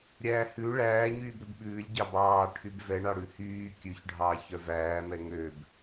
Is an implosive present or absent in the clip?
present